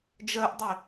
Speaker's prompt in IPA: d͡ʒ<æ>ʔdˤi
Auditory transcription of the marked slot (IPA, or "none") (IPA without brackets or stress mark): ɜ